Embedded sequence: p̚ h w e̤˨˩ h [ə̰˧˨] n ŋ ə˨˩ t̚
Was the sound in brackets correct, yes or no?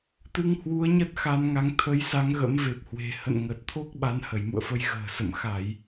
yes